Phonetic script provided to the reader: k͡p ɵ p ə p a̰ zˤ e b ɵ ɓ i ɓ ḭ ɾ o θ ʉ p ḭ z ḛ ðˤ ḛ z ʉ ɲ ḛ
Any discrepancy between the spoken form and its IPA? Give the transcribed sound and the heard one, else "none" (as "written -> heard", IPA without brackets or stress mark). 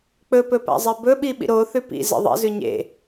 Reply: ə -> ɵ